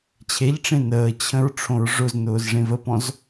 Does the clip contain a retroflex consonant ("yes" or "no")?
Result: yes